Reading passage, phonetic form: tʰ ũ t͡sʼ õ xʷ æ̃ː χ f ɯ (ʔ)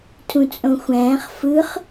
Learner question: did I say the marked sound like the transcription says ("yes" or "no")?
no